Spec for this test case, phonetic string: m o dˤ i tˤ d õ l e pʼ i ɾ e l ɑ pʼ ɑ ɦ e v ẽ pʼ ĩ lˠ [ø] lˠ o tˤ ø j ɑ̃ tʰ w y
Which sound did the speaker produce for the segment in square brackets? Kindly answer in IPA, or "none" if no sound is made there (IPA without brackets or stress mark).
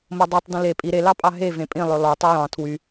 ø